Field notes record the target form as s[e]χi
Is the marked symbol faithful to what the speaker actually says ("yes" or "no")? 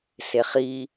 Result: yes